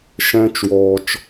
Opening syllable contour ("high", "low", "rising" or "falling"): high